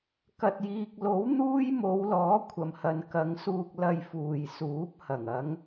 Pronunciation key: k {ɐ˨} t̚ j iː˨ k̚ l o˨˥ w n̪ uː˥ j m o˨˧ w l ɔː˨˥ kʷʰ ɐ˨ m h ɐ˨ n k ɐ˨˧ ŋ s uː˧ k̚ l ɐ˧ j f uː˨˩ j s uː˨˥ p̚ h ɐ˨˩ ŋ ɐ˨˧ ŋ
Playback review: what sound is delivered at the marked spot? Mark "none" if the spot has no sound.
ɐ˨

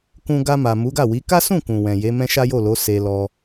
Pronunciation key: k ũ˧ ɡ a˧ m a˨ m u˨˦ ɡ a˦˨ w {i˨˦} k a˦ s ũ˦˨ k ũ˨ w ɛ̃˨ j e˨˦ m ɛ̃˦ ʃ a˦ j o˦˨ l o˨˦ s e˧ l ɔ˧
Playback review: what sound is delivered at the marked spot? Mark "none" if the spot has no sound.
i˨˦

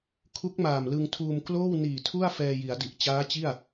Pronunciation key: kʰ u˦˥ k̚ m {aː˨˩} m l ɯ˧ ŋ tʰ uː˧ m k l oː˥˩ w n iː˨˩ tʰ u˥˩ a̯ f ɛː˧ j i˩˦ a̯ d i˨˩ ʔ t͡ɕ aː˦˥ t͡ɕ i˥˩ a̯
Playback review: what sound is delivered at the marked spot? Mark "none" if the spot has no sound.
aː˨˩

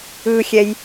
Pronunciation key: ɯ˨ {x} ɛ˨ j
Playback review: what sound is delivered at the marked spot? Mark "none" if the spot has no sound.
xʲ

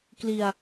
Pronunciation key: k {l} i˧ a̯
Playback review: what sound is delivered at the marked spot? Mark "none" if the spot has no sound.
l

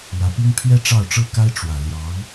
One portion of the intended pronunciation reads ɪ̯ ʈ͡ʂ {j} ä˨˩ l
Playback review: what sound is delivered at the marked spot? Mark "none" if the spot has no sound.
w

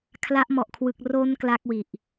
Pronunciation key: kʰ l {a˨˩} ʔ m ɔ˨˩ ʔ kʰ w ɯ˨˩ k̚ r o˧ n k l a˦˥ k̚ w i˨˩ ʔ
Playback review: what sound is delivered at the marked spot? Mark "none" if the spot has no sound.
a˦˥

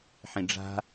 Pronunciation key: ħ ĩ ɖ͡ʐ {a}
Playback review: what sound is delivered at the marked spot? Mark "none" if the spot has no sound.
a̤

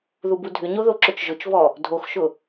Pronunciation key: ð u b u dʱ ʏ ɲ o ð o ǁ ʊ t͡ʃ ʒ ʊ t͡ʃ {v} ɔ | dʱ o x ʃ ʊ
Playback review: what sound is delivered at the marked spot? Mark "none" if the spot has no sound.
v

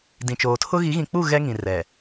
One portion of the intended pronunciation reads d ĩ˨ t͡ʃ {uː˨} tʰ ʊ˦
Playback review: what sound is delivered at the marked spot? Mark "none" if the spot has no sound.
oː˨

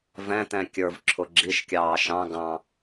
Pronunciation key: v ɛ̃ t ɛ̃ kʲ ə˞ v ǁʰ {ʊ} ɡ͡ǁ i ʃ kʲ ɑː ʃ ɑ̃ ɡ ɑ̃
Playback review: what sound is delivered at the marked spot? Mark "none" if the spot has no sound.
ʊ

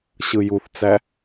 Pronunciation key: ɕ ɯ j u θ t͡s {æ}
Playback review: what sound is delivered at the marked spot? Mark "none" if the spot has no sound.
æ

